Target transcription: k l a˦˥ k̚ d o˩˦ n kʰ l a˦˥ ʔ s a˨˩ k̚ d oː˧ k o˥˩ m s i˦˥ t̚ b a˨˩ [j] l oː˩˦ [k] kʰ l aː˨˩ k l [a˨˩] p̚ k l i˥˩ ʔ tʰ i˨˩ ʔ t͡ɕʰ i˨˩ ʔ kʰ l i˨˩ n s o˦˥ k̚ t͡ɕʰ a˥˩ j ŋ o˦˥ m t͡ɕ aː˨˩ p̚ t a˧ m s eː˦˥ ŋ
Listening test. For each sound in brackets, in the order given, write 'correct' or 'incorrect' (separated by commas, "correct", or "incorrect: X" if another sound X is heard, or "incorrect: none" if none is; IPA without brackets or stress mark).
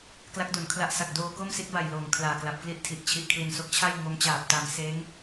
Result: correct, incorrect: ŋ, correct